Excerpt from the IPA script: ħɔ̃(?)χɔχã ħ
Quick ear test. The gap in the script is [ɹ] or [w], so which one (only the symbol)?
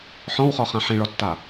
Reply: w